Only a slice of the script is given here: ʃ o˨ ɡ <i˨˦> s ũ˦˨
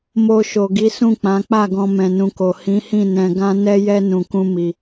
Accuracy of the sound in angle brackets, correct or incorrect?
correct